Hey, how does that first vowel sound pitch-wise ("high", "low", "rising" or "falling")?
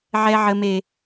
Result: high